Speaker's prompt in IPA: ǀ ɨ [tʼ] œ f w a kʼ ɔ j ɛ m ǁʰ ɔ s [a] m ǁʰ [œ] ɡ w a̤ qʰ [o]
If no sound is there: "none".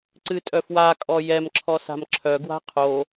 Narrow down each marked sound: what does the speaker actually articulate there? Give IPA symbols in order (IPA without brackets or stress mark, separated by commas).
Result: tʼ, a̤, œ, o